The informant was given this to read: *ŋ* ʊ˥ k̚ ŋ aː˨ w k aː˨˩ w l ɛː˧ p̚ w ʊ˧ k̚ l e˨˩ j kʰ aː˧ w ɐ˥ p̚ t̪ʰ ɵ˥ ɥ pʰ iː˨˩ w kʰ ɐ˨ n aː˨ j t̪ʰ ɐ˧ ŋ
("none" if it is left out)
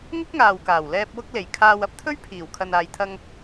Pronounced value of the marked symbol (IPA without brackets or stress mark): ŋ